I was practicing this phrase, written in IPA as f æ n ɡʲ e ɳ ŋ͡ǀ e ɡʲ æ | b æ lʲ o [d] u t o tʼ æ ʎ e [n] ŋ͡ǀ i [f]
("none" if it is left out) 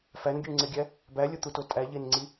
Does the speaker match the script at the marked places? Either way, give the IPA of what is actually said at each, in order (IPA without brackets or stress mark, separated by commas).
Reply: t̪, n, none